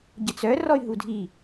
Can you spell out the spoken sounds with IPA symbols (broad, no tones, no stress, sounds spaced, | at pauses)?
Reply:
ɟ ə t͡s œ r ɔ y̯ ɦ u dʱ i